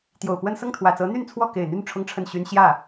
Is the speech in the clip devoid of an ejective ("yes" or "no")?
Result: yes